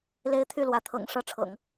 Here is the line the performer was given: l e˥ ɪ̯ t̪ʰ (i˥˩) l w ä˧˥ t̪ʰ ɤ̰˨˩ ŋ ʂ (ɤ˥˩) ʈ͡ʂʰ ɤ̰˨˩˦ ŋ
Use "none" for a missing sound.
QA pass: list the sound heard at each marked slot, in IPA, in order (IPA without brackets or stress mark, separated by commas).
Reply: y˥˩, ɤ˥˩